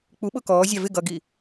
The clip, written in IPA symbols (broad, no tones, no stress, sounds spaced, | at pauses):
k͡p u ɓ ʊ k ɔː zʲ ɑ v ɪ ɡ ʌ ɡ i